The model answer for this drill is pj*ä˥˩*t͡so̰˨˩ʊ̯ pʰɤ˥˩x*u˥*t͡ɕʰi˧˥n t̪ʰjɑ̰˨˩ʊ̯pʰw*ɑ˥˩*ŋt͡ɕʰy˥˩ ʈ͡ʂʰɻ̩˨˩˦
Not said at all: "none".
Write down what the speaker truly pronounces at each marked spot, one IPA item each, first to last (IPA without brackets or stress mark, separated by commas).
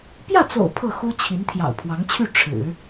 ä˥˩, u˥, ɑ˧˥